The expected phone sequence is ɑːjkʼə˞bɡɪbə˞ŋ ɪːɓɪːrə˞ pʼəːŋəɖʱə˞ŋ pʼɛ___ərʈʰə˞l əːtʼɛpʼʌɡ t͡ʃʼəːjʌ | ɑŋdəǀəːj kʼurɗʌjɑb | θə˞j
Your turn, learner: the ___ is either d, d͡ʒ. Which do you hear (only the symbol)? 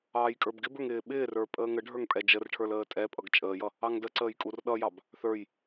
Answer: d͡ʒ